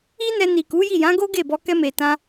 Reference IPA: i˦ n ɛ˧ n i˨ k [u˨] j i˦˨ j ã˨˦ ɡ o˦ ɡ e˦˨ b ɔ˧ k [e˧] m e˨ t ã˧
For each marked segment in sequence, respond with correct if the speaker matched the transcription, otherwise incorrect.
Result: incorrect: u˨˦, incorrect: ɛ˧

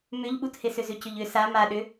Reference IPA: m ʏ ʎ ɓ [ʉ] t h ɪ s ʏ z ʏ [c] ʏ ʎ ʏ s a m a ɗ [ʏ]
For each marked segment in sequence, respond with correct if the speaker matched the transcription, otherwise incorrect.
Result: incorrect: u, correct, correct

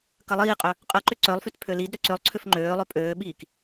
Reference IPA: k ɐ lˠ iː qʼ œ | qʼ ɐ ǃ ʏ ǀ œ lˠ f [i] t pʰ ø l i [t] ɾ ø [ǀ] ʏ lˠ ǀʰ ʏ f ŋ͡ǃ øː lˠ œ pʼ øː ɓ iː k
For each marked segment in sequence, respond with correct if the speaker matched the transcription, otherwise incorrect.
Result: incorrect: y, incorrect: d, correct

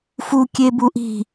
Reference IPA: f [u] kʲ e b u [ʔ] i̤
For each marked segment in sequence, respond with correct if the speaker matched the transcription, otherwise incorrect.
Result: correct, correct

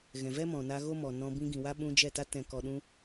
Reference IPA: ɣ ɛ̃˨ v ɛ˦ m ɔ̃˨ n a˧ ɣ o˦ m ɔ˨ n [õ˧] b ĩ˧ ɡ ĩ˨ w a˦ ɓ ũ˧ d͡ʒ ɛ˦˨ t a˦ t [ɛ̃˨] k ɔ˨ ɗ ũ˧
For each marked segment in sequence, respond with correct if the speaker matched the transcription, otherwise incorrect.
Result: incorrect: ɔ̃˧, correct

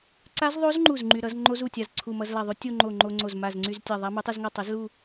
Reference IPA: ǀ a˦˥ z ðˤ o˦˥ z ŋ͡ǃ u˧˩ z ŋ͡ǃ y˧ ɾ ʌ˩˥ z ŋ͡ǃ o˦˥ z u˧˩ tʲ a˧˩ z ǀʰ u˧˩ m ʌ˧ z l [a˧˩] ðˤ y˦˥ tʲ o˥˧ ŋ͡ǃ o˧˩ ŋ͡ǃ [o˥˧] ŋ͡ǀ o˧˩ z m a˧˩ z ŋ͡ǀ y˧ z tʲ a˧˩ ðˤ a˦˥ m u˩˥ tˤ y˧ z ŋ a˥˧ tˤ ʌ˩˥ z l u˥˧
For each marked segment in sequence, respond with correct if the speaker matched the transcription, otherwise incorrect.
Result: correct, incorrect: o˧

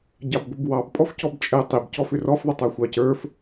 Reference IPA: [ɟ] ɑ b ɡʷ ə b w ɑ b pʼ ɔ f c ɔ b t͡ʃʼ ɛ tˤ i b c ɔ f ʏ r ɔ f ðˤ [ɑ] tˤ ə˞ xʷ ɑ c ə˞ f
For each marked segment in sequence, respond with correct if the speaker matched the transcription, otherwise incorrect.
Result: correct, incorrect: ə

